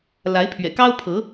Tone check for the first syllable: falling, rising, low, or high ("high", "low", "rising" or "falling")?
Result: rising